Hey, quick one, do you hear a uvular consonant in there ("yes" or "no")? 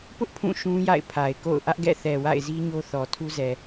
no